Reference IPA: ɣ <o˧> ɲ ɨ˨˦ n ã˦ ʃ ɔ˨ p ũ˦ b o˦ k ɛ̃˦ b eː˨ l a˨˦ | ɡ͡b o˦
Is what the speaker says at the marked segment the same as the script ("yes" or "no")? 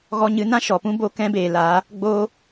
no